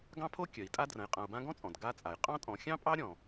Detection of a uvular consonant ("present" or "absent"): present